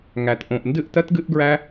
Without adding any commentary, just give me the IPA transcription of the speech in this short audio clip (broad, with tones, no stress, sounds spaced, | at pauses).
ŋ æ˨ t ʔ õ˨ ʔ n d ɨ˦˨ ʔ t ɜ˦ t ɡ ɨ˦ ʔ ɡ ɹ æ˦